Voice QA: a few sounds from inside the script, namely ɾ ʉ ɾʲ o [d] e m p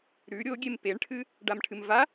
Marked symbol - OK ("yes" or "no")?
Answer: no